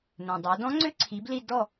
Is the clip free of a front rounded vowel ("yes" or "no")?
no